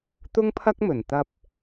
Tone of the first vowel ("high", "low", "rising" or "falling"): high